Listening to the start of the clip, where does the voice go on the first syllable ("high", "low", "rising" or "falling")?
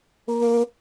high